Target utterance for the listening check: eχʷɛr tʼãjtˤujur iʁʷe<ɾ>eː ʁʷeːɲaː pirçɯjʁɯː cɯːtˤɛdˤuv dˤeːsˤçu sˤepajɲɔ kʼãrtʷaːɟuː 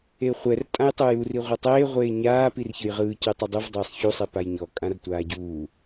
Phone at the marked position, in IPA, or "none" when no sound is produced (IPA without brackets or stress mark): tˤ